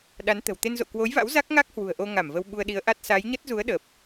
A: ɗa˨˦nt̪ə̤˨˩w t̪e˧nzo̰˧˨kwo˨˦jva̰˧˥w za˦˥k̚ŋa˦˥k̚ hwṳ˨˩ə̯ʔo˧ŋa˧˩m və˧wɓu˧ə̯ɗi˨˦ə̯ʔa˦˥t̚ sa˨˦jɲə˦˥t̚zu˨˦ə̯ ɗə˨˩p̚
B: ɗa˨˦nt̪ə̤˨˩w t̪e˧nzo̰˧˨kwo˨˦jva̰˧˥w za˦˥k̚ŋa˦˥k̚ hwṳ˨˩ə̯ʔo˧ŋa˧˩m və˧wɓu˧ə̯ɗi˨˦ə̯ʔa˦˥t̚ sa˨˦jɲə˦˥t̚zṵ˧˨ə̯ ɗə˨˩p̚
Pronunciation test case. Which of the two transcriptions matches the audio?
A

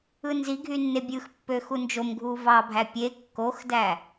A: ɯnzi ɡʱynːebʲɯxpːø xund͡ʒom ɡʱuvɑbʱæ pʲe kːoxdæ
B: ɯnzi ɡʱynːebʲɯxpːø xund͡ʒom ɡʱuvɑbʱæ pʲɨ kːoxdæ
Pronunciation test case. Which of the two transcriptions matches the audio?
A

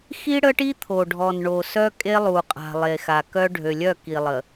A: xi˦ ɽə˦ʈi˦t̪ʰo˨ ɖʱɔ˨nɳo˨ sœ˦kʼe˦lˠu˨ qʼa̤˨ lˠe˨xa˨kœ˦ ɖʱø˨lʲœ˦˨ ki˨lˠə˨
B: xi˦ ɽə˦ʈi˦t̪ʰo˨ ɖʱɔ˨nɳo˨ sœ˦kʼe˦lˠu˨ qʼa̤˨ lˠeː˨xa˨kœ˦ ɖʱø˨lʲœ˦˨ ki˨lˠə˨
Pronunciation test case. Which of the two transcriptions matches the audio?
A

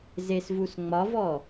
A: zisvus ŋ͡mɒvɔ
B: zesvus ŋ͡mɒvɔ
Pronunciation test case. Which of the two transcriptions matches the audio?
B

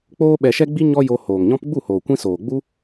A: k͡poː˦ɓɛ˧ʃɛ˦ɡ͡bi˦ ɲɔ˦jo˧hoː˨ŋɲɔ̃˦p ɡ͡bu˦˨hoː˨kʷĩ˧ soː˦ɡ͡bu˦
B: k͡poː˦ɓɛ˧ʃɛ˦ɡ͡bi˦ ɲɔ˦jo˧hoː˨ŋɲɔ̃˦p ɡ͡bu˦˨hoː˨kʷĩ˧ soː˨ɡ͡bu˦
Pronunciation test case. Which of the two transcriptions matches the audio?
B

